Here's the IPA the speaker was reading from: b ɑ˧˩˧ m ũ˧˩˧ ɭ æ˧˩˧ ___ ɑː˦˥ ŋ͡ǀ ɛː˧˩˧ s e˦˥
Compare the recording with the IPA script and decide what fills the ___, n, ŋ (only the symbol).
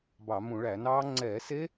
n